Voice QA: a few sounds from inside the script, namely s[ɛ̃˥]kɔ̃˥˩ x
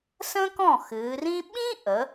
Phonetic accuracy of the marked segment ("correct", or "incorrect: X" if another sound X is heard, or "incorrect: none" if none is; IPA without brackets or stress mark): incorrect: ə̃˥